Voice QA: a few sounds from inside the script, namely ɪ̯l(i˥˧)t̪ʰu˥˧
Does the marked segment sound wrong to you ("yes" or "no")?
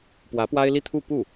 no